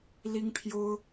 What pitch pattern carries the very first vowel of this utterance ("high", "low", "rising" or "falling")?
high